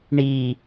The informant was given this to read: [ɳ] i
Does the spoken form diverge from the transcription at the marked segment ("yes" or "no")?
no